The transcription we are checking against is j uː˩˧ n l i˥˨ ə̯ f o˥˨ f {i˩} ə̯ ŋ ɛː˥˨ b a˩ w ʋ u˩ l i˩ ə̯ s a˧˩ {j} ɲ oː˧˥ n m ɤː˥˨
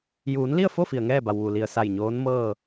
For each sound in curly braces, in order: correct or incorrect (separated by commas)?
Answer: correct, correct